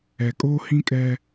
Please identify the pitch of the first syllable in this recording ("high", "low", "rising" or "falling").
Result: low